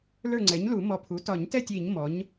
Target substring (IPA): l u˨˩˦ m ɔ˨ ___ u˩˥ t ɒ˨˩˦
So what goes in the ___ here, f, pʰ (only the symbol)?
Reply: pʰ